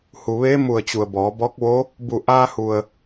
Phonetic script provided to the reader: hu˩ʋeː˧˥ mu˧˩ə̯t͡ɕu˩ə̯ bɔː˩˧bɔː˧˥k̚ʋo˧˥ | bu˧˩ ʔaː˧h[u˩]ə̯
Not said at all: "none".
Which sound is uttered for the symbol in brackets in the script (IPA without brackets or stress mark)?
u˩